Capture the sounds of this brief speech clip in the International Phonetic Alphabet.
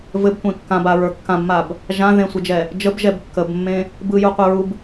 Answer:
v ɘ b tʷ ẽ kː ã b a ɹ ə˞ kː ã b m a b | ʒ ã ð ẽ sʷ ɘ d͡ʒ ɛ | d͡ʒ ə b ʒ ɛ b kː ə b mː ẽ | b ɯ j u qʷ ɛ ɹ u b

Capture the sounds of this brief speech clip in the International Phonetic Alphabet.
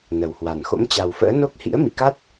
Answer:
n ə˨˩ w h w a˨˩ n x o̰˧˥ m t͡ɕ a˨˩ w f ə̰ː˧˥ n o˦˥ k̚ h ḭ˧˥ ə̯ m ḭ˧˨ k a˦˥ t̚

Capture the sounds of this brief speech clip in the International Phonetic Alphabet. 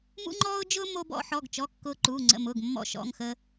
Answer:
m ṵ˧ ŋ͡ǃ ɔː˧ ʊ̯ d͡ʒ ʊː˧ m o˧ b ɔ̰˧ ħ ɔ˩˧˩ ɡ t͡ʃ ɔ˩˧˩ kː ʊː˧ ǃ uː˩˧˩ ŋ͡ǀ ə̰˩˧˩ m ʊː˩˧˩ ɡ mː ɔ̰˧ ʃ ɔ̰˩˧˩ ŋ x ə˧

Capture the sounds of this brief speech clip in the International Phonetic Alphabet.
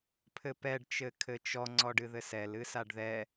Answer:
pʰ ɘ p ɛ ɖ t͡ʃ ɘ kʰ ɘ t͡ʃ ɔ ŋ͡ǀ ɔ ɖ ɨ ð ɘ s ɛ l ɨ s a ɖ ð ɛ

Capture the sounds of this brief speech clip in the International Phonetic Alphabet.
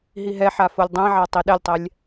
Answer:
ɦ i ɦ ɛ ħ a f o lʲ dˤ ɛ̃ ʕ a tˤ i ɗ ɛ lʲ tˤ ɛ lʲ

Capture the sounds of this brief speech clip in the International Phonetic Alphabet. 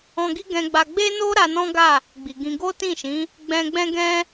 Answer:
ɔ̃˧ ɡ i˦ ɡ ɛ̃˧ ɡ͡b a˧ ɡ͡b e˦ n o˦ ɾ a˧ n ɔ̃˦ ɡ a˦˨ | ɡ͡b i˨ ɡ ĩ˧ ɡ o˦ t ĩ˦˨ ʃ ĩ˨˦ | ɡ͡b ɛ̃˧ ɡ͡b ɛ̃˦ ɡ ɛ̃˦

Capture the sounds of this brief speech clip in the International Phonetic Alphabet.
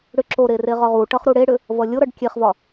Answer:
ɽ ʏ ǁ o ɾ e r e ʁ ɒ ʁ u ʈ ʌ χ ɾ u ɽ e ɽ ʏ | v ʌ lʲ o ɾ ʌ ɖ kʲ e χ v ɒ

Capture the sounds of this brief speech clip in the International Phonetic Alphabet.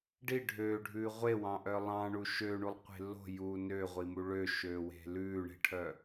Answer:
ɖ i ɖʱ ø ɖʱ ʉː ʁʷ e w ɑ̃ ʔ œ lˠ ɑ̃ ɳ u ʃ ø ɳ u lˠ qʷ e̤ l o̤ j uː n ø ʁʷ i m u ɭ ø ʃ øː w e̤ l ʉː ɳ e̤ ʈʰ œ

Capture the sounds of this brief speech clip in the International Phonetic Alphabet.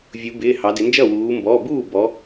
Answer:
vʲ u˩˧ b ɪː˩˧˩ h ɑ˩˧ d ɪ˩˧ n d͡ʒ ʌ˥˩ w uː˩˧ m b ɔ˩˧˩ b uː˥˩ b ɔ˩˧

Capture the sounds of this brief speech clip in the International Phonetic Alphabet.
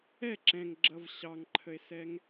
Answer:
ɛ ǁ ɛ̃ ŋ ɡ͡ǁ ʌ v ɕ ɑ ŋ ǃʰ ə e̯ s ɛ ŋ

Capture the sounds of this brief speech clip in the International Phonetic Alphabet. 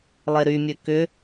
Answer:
lˠ e ɾ y mʲ ø k ʏ

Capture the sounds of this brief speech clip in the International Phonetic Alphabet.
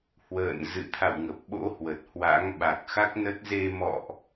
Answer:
h w ə̰ː˧˨ n z ɨ̰˧˨ t̪ʰ a̰˧˨ w ŋ ə˨˩ p̚ ɓ o̰˧˥ h w ə˨˩ t̚ h w a̰˧˥ ŋ ɓ a˨˩ k̚ x a˦˥ k̚ n ə˦˥ t̚ z e˧ m ɔ̰˧˨ ʔ

